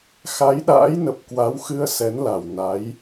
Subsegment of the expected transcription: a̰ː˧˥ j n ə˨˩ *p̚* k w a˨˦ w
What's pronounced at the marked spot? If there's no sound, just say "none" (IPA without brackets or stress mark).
p̚